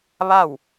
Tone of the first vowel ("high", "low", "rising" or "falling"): falling